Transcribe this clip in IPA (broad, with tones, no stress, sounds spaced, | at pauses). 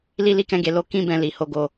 l i˦ l i˦ k ɛ̃˦ ɡ e˧ l o˦ k ĩ˦ b ɛ̃˧ l i˨ h o˨˦ ɡ o˧